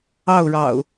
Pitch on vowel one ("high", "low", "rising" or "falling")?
falling